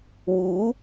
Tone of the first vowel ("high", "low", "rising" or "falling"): rising